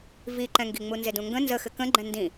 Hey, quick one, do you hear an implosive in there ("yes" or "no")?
no